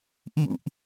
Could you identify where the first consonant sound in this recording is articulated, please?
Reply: glottal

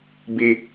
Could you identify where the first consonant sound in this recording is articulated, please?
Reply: labial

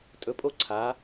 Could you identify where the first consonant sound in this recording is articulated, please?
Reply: alveolar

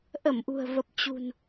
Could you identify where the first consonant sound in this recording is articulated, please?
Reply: glottal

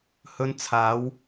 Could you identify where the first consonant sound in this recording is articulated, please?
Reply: glottal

